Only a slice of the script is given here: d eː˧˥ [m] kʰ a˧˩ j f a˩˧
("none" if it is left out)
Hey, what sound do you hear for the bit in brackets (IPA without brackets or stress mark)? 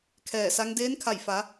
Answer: n